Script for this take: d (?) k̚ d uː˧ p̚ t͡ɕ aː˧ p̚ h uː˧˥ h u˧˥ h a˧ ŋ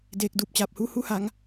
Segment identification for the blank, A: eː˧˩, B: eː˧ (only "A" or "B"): B